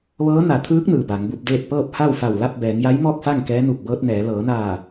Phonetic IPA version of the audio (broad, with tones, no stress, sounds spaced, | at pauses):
ʋ ɤː˧˥ n a˩˧ t̪ʰ ɯː˧˥ k̚ n ɯː˩ b a˩˧ ŋ b u˧ p̚ d eː˥˨ t̚ p ɤː˥˨ p̚ h a˥˨ w f a˧˩ w l a˥˨ p̚ b ɛː˩˧ ŋ j a˧˥ j m ɔː˥˨ k̚ f a˥˨ ŋ k ɛː˧˥ n u˧˩ k̚ b ɤː˧ t̚ n ɛː˩˧ l ɤː˩˧ n aː˧˩